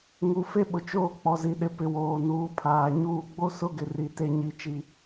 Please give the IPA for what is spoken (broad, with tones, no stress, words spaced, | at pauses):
ŋu˨fe˦ɓʊ˨ t͡ʃoː˦˨k͡pɔ˨ zi˨ɗɪ˨pɪ˨ woː˨nuː˨˦pʰaː˨ ɲuː˦ ɡ͡bo˦sʊ˦ɡɪ˨ri˨ te˦ɲi˦˨t͡ʃi˦